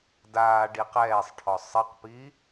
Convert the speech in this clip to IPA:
daː ɖiqɛːsˤʈʰɔ sˤɪqpi

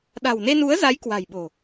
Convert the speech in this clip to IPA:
ɗa̤˨˩wne˧nu˨˦ə̯za˨˦j kwa̤˨˩jɓo̤˨˩

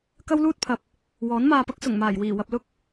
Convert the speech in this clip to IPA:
kɐ˥wluː˥t̚pʰɐ˨p̚ | wɔː˨˥nmaː˧pɐ˥k̚ sʊ˨˩ŋmaː˨˩jwiː˨˩ wɐ˧p̚lʊ˥k̚

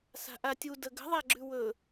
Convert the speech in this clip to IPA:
sa̤ʔatʲu dəɡə̤ðˤa ɡ͡ǁʉwɵ

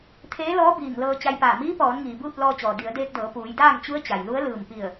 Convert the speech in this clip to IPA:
t̪ʰeː˧˥lɔː˧˥ biː˧˩ŋlɤː˧ t͡ɕa˧jpaː˧˩ miː˧˥pɔː˩˧nŋiː˩ buː˥˨t̚lɔː˧t͡ɕɔː˩ di˩˧ə̯deː˧k̚dɤː˩˧ puː˩˧jdaː˥˨ŋt͡ɕu˧˥ə̯ t͡ɕa˩jlu˧˥ə̯ lɯː˧˩mpi˧˩ə̯

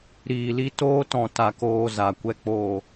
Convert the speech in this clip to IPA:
ɾiː˨li˧toː˧tɔ̃˨ ta˨koː˨ za˨ kʷɛ˨ k͡poː˨

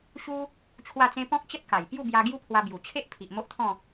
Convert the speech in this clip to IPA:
ɕu˦ | t͡ɕʰwa˥˧t͡sẽ˦ pɔ̃˦k̚t͡ɕə˦t̚ka˨˩j pju˥˧bja˧ ɡju˦pʰwa˧ bju˨˩t͡ɕʰe˦ʔ pʰi˨ʔ mo˦ʔt̪ʰɔ̃˥˧

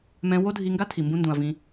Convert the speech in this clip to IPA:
mɛ̃˦ wo˦dʱi˧ŋɡa˦ tʰi˨mbũ˧ndũ˨ɐ̯ vĩ˧

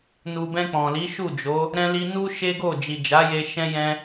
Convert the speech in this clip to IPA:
nu˨bɛ̃˧ k͡pɔ̃˨li˨˦ ʃu˦˨d͡ʒo˨˦ | ɾɛ̃˧li˧ nu˦ ʃe˦ɡo˦˨ d͡ʒi˨d͡ʒa˨˦je˧ ʃɛ̃˦jɛ̃˦

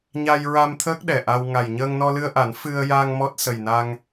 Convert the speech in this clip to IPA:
ɲa˧jɹa˧m t̪ʰəː˦˥k̚ɗɛ˨˩ʔa˧w ŋa˨˩j ɲəː˧ŋnɔ˧lɨ˧ə̯ʔa˨˩˦n fɨ˧ə̯ja˧ŋ mɔ˦˥t̚sə˨˩jna˧ŋ

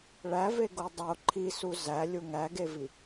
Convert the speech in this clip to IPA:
ɭæveɡo dˤo ǃʰisu zælʲu ŋæɡevi

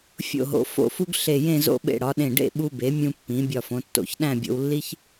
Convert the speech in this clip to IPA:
fʲo̰˧˩ɦo̰˩˧ fo̰˧˩fu˧ɡ ɬe˧˩jẽ˥˧ zo̰˧ɓḛ˧˩ ɽɒ˩˧ɗẽ˧˩ɖḛ˥˧ ɓu˧be˩˧ mʲũ˧pːĩ˩˧ bʲɒ˧˩fõ˩˧tːo̰˧˩ç ɗæ̃˥˧bʲo̰˧wlːi˥ç

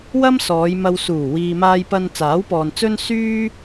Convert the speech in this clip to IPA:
wɐ˥msɔː˨˧jmɐ˧wsuː˨˩ wiː˨maː˧jpɐ˧n t͡saː˨˥wpɔː˨n t͡sɵ˥n syː˥

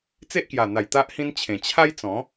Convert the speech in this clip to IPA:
t͡se˦ʔkja˨˩n̪a˨˩j t̪a˦ʔhĩ˦nt͡ɕʰẽ˨˩ t͡ɕʰa˦jt͡sɔ̃˨˦

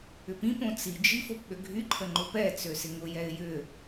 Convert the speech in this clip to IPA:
ʏpĩpõ t͡sid͡ʒi fopɓøɡʱyǃʰə ŋ͡ǃʊpɛt͡sø sɪŋʊjɛɪ̯ jʏ

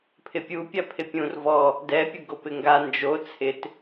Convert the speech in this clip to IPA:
pʰɪpʲupʲa pʰɪpʲũr vɔ | dɛpʲʊɡopɪ ŋɡa nd͡ʒo t͡sʰɪt

